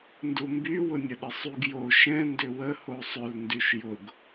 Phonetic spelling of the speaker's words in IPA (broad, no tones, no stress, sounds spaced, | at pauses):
n d u m b y w ʊ nʲ ə ɗ ə sˤ y ɡ j o ʃ ɛ̃ n d ʏ w ə h o sˤ ʏ l n d y ʃ j ʊ ɡ